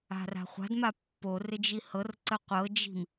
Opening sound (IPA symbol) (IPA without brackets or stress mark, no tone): a̤